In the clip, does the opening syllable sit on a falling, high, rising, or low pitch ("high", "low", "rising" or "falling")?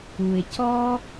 low